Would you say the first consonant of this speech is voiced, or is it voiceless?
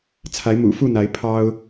voiceless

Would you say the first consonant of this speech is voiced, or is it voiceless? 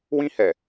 voiced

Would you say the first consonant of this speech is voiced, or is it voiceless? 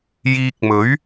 voiced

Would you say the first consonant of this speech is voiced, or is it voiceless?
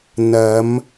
voiced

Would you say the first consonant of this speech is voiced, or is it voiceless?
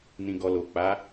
voiced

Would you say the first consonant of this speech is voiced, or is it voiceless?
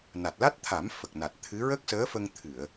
voiced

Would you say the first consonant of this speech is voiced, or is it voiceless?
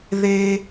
voiced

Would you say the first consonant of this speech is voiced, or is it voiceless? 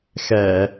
voiceless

